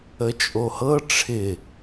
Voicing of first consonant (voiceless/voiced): voiceless